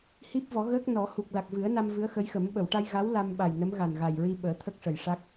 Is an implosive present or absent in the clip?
present